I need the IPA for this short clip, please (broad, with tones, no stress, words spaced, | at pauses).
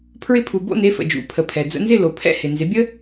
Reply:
pʰɹɪ˧pʰu˩bo̰˥˩ ne˩˥fə̰˩d͡ʒṵ˩˥ pʰə˩pʰɛ˩ d͡zə̰˧nzɪ˥˩lo˩ pʰɛ̰˥˩hɪ˩nzɪ˩˥ bʲə˥